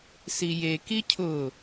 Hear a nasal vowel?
no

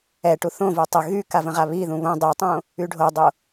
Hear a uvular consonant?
yes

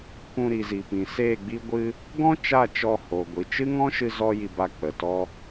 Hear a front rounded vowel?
no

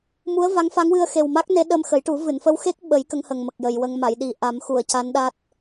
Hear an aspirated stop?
no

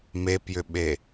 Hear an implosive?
yes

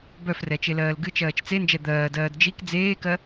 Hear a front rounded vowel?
yes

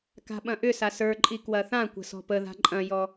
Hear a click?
yes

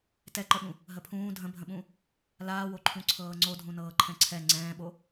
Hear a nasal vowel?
yes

